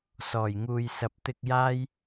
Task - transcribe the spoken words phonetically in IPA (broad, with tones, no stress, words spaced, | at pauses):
sɔː˨˩jŋuː˨jsɐ˨˥p̚ t̪ɪ˧k̚jaː˥j